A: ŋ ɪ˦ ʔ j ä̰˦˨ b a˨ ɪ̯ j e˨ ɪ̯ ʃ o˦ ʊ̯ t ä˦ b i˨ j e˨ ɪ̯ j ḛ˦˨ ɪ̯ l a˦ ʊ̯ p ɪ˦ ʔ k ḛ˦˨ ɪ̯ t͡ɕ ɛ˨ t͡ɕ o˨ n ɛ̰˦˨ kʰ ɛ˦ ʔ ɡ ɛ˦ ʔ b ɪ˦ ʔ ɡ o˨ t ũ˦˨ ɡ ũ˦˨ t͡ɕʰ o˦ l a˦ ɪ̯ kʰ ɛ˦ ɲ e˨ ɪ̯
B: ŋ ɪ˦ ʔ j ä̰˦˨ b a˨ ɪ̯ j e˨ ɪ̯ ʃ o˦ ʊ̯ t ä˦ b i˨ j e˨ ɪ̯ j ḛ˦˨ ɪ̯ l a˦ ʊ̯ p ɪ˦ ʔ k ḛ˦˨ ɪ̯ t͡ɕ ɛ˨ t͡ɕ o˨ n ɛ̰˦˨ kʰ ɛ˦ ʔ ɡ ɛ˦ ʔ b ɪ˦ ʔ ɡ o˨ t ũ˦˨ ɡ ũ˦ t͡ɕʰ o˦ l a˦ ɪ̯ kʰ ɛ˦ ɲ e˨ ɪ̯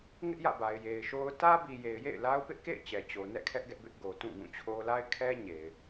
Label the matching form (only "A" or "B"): A